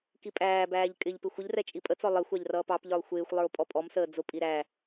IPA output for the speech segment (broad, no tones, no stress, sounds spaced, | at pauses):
k i pʼ æː b æː ʎ kʼ ɪ ʎ p ɪ xʷ ə ʎ r ɛ t͡ʃʼ i pʼ ə t͡s ɔ lˠ ɪ xʷ ɑ ʎ r ʌː p ɑ p ʎ ə˞ lˠ xʷ ɪː xʷ lˠ ə˞ o̯ pʼ ɔ pʼ ɔ m s əː d͡z ʊ pʼ i ɾ æ